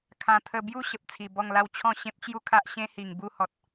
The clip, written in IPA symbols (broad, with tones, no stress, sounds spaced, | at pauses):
kʰ ã˨˩ t̪ʰ ə˧ b j u˥˧ ɕ ə˨ p̚ t͡sʰ i˨˩ b ɔ˥˧ ŋ l a˥˧ w t͡ɕʰ ɔ̃˥˧ ɕ ẽ˦ p̚ t͡ɕ j u˥˧ kʰ a˦ ʔ ɕ ẽ˦ h i˨˩ ŋ b u˥˧ h ɔ˨ t̚